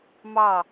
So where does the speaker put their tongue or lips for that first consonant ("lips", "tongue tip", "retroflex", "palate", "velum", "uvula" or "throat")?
lips